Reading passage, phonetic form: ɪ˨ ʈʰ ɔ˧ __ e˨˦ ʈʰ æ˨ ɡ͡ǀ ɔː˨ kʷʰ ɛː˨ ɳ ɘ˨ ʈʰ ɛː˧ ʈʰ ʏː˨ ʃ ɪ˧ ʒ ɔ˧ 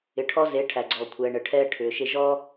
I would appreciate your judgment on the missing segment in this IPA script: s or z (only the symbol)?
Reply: z